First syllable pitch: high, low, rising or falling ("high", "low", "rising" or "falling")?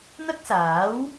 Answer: high